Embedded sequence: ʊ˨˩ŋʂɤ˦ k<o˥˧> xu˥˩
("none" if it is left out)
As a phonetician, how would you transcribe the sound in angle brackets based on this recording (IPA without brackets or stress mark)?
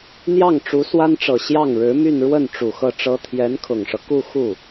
u˥˧